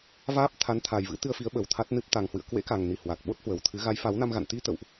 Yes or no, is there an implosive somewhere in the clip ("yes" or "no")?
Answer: yes